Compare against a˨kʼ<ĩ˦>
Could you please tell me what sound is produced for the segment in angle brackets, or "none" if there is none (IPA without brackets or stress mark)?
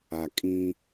ĩ˦